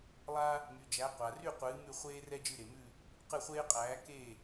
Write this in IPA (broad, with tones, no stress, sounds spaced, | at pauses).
lˠ a˥ | m y˩ d͡ʒ æ˩˥ qʷ a˩ r y˥˩ qʷ ɨː˩˥ m ʉ˥˩ χʷ eː˥ r ɛ˥ d͡ʒ ɨ˥˩ ɾ e˩ m ʉ˥˩ | q ɨ˥˩ χʷ eː˥ qʼ æː˩˥ k e˥˩